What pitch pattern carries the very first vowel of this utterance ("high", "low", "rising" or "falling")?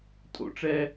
high